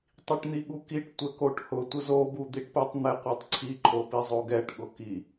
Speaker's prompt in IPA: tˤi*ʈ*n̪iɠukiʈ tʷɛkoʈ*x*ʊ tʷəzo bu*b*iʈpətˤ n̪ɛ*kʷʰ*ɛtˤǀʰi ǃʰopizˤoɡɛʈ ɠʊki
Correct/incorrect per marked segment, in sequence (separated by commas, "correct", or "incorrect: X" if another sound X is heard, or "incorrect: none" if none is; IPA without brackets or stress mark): correct, incorrect: h, incorrect: d̪, incorrect: qʷ